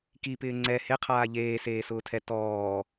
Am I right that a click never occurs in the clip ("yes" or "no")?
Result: no